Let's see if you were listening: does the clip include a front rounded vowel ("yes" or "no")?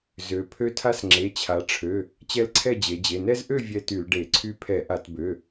yes